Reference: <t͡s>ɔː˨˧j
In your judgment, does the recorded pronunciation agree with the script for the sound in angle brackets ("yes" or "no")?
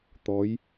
no